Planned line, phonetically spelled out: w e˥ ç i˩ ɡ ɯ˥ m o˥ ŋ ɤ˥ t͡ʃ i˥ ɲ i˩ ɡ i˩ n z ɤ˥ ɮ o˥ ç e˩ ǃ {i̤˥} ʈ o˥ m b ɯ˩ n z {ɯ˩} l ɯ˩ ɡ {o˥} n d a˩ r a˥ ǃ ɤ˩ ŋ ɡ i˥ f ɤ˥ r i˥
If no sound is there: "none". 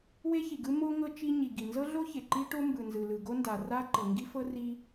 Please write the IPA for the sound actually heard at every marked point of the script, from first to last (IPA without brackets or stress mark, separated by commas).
i˥, ɯ˩, o˥